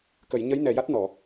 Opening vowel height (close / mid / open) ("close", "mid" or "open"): mid